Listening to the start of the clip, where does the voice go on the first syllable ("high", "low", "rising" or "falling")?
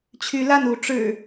rising